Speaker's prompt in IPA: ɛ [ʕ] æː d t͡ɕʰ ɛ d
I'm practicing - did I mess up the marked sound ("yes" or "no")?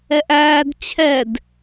yes